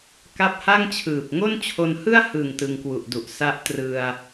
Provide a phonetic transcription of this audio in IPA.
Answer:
ka˦˥p̚ha˥˩ŋt͡ɕʰɯː˨˩p̚ ŋo˥˩nt͡ɕʰo˧nhɯ˥˩a̯ hɯ˨˩ŋ tɯ˧ŋkwu˨˩ʔdu˨˩ʔ sa˦˥ʔtrɯ˧a̯

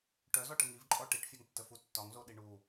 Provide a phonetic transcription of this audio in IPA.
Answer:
ʈœzɔʈə ŋivǃʼɔ ʈiʈfʲœŋtːəfu tːɒŋzoɗi ɳu

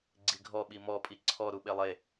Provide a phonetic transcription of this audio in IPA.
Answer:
ɡ͡ǀiɡʱɔɓi mɔpʼi ǀʰɔ ɾuɓelˠe

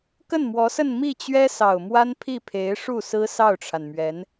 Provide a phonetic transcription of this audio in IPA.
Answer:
kə˥˩nmwɔ˧˥sə˥˧n mi˥˩t͡ɕɥɛ˥sɑ˨˩ʊ̯mwa˥n pʰi˥˩pʰe˧˥ɪ̯ʂu˥˩sɹ̩˥ sɑ˥˩ʊ̯ʈ͡ʂʰa˩nmɥɛ˧˥n

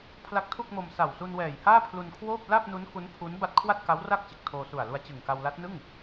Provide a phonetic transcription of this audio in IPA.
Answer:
pʰla˦˥k̚tʰu˥˩k̚mo˧m sa˨˩wsu˧nwɛː˨˩jhaː˥˩ pʰlu˧nkʰwoː˥˩p̚ la˥˩p̚nu˦˥n ku˦˥n pʰu˦˥n ba˥˩t̚ kʰwa˥˩t̚ka˦˥wra˥˩k̚ t͡ɕɯ˨˩k̚tʰoː˧su˨˩a̯lu˧a̯ t͡ɕɯ˨˩ŋka˧w la˦˥t̚nɯ˥˩ŋ

